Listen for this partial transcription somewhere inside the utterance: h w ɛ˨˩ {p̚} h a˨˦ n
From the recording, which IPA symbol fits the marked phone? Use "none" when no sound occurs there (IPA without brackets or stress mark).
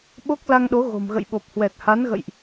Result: t̚